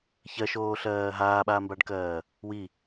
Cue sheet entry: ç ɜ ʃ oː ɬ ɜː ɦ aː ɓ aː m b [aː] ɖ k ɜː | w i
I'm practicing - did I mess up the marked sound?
yes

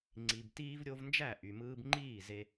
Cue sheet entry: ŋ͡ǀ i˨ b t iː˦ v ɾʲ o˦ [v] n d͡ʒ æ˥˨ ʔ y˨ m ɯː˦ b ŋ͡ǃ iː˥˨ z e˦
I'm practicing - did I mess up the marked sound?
no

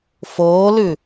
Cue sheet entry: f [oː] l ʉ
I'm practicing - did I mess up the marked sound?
no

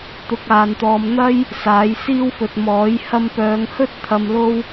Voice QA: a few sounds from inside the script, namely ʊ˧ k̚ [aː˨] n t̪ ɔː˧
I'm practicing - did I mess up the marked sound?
no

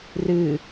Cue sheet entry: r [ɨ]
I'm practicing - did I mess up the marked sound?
no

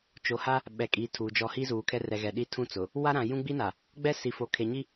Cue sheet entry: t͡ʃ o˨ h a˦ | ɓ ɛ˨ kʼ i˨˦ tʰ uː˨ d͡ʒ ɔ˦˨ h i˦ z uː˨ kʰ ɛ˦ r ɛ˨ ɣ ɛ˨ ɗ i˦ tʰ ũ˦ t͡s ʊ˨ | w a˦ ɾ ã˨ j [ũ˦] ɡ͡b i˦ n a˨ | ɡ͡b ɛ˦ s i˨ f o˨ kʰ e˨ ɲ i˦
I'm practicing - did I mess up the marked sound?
no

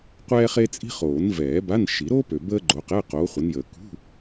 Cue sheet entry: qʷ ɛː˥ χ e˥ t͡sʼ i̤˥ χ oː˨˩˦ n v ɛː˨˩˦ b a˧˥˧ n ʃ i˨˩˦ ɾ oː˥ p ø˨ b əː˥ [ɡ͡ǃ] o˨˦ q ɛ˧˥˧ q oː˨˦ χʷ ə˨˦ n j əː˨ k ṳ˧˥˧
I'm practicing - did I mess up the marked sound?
no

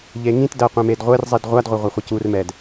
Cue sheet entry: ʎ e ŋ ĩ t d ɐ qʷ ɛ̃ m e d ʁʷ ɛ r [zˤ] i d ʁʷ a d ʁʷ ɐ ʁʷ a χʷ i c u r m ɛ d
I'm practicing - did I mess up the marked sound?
no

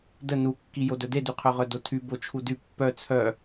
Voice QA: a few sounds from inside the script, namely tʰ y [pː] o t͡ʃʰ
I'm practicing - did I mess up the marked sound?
yes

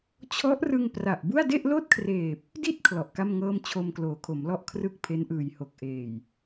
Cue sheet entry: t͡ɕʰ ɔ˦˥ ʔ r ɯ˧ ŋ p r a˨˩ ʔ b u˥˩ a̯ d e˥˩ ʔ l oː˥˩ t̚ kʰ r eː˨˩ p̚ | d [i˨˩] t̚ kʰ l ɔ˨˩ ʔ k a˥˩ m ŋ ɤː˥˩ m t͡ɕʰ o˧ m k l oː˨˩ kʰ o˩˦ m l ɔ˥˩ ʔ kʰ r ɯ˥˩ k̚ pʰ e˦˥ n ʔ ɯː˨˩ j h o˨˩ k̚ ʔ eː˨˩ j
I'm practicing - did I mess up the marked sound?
yes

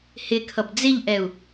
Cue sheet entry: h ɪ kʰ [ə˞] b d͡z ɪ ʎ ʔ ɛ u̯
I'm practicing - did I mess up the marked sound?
yes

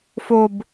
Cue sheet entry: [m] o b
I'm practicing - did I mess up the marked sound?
yes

